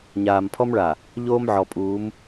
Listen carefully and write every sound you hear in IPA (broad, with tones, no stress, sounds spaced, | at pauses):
ɲ aː˨ m pʰ ɔ˦ m ɭ a˨ | ʎ oː˦ m ʕ ɔ˨ pʼ uː˨˦ m